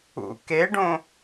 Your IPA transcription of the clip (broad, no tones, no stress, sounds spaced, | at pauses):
ṵ k e ɖ õ